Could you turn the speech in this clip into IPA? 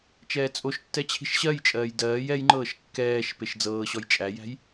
t͡ʃɛːt͡sʼoʃtːɛ t͡ɕʰi̤ʃɕɜjt͡ʃʼɜːj dɜːj ɛjŋ͡ǃɤːʃ kːɛːʃ peʃd͡zɤːɕɔj t͡ʃʼæjæ̤j

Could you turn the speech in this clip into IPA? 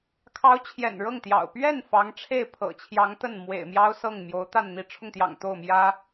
kʰɑ˧˥ʊ̯ t͡ɕʰjɛ̰˨˩nɻɤ˥˩ŋt̪jɑ̰˨˩ʊ̯ pɥɛ˥˩n fɑ˧˥ŋ ʈ͡ʂʰe˥˩ɪ̯pʰɤ̰˨˩t͡ɕʰjɑ˧˥ŋ t̪ə˥˩nmwḛ˨˩ɪ̯mjɑ˥ʊ̯ sɤ˥˩ŋmjo˧˥ʊ̯t̪a˥˧n n̪i˥˧ ʈ͡ʂʰʊ˥˩ŋt̪jɑ̰˨˩ŋ t̪o˥˩ʊ̯ mjä˥

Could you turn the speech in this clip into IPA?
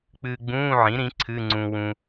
k͡pɨː˧ɡ͡bũː˧˥˧ʕĩ˩˥ɾĩ˩˥ ǀʰɨ˧˥˧ŋ͡ǀũ˧ wũ˧

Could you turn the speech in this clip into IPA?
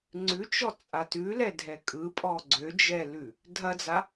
ŋ͡ǀʉt͡ʃɔ t͡sʼatʉlɛdʱɛ kʼɯpʼɔ ɡ͡ǀød͡ʒɛlʉ | dʱɐd͡za

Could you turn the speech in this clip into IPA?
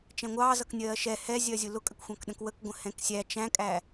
t͡ʃɛ̃ŋʷɑːzʌk nʲɜːʃɛ hɛzʲɜzʲʊ lʊkʼəkxʷɑ̃kɗə̃k wəkɡʷə̃ hɛ̃ksʲæ t͡ʃæ̃kʼæ

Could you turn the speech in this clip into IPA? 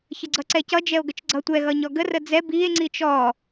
çəɡ͡ǀʌǀɛcʌ d͡ʒɛo̯ɡət͡ʃɡ͡ǀʌ tʷɛ ɣʌɲɔɡə rəd͡zɛ bie̯ ŋ͡ǀit͡ʃɔ

